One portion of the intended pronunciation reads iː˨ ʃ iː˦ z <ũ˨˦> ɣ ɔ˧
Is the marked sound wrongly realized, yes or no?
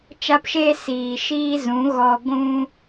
no